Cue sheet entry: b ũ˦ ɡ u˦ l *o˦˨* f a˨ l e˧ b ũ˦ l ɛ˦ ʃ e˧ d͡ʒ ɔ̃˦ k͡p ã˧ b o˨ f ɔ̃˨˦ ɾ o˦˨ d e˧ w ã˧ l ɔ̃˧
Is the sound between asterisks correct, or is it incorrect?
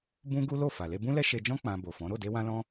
correct